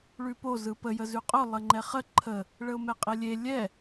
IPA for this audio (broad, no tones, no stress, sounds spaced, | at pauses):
ɭ ʉ p o z ɯ p ə j ə z ʉ qʼ ʊ lˠ ə ŋ͡ǃ ɛ χ ə ǃʰ ə | ɭ ə ʊ̯ m ɛ qʼ e lʲ e lʲ ɛ